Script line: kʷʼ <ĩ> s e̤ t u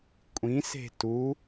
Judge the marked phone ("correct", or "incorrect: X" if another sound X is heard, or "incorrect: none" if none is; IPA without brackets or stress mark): correct